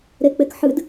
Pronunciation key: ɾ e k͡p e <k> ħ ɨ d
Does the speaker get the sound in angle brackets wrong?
no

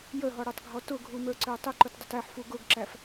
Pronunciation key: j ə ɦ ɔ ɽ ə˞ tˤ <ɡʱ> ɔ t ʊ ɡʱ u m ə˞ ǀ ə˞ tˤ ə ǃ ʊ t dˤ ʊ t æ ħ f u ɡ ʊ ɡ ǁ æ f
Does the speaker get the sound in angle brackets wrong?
no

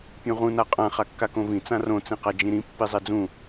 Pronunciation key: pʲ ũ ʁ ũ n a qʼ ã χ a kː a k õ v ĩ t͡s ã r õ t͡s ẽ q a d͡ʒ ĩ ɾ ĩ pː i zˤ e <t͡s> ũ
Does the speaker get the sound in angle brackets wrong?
yes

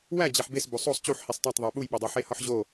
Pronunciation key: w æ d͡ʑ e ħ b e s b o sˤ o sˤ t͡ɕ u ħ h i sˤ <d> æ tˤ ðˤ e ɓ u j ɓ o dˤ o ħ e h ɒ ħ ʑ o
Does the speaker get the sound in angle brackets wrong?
yes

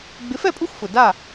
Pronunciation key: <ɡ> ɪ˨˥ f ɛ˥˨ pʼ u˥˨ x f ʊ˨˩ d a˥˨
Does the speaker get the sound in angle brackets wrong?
yes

